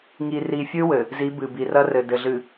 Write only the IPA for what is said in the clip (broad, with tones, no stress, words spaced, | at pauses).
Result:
ŋi˨ri˨fʲɨ˦wɘ˨ | zi˨˦bɨ˨ bi˨rɐ˦rɘ˨ dɘ˨ɮɨ˨